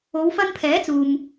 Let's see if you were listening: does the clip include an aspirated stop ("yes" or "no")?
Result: yes